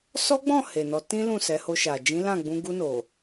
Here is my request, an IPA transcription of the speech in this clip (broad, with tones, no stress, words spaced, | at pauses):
sɔ˦ɡ͡bɔ̃˦˨ he˨nɔ˧ tĩ˦lũ˦˨sɛ˨˦ho˧ ʃa˨ d͡ʒĩ˨˦lã˦˨ɡ͡bũ˧ ɡu˧no˨